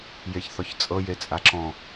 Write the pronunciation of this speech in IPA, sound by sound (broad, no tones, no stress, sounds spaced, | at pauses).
j e ç θ ɔ ç t͡sʼ ɤ j e t͡sʼ a ǁ ɔ̃